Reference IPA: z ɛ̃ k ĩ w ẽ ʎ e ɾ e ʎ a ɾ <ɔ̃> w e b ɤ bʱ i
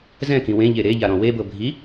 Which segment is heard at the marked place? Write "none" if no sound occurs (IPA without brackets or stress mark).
ɔ̃